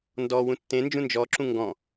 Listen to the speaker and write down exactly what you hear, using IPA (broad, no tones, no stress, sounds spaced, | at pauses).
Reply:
n d ɔ w ũ tː ẽ n d͡ʒ ũ n d͡ʒ ɔ ǁ ũ ŋ ɡ ɔ̃